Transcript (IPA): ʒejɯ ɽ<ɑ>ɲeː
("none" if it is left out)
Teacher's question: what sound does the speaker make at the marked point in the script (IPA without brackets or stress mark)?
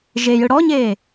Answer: ɔ